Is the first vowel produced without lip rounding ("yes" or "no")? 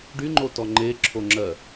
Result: no